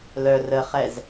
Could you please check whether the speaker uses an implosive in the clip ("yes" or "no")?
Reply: no